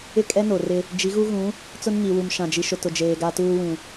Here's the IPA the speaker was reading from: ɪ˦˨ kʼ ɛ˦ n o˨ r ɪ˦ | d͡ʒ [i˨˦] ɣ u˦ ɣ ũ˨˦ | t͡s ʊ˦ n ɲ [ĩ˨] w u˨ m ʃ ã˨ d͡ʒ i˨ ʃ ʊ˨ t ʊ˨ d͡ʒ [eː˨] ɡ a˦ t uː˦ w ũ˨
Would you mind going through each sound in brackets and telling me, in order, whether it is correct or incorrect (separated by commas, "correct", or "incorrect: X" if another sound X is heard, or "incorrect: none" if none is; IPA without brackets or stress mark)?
correct, incorrect: i˨, correct